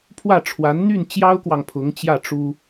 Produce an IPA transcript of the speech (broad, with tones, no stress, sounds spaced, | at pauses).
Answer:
pʰ w ä˥˩ ʈ͡ʂʰ w a˧˥ n n̪ y˥˩ n t͡ɕ j ɑ˥ ʊ̯ k w ɑ˨ ŋ pʰ ʊ˧˥ ŋ t͡ɕ j ä˥˩ ʈ͡ʂ u˥